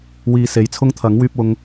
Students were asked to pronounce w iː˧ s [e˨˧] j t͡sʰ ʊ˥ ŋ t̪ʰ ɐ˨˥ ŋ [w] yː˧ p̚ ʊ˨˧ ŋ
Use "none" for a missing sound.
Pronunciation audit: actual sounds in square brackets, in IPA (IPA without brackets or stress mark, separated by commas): e˨˧, w